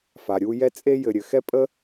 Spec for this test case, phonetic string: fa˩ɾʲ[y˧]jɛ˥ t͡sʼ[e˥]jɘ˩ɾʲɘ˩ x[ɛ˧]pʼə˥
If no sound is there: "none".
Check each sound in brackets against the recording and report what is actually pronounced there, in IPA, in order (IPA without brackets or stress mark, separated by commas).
u˧, e˥, ɛ˥